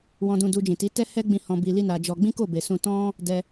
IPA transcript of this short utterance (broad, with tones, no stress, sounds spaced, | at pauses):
w ɔ̃˧ d ũ˧ d u˧ d͡ʒ ĩ˨ t i˨˦ t ɛ˦ h ɛ˦ ɡ͡b ĩ˦˨ h ɔ̃˧ b i˧ l i˦ n a˧ d͡ʒ ɔ˧ ɡ͡b ĩ˦ k o˦˨ b e˨ s ũ˧ t ɔ̃˦ | d ɛ˧